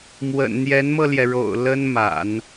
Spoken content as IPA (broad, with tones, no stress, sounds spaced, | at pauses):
m w ə̰˨˩ n n̪ j ɛ˧˥ n m ɤ˧ l j ɛ˩ ɻ o̰˨˩ ʊ̯ l ə˥ n m a̰˨˩˦ n